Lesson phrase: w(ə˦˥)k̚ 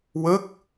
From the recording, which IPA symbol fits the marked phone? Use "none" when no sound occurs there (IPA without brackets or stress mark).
ə˦˥